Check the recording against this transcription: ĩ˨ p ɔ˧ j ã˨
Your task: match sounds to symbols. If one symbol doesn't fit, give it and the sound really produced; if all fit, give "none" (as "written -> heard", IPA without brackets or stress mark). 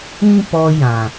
ĩ˨ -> ĩ˦